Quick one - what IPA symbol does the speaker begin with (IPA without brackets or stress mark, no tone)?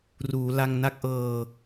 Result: r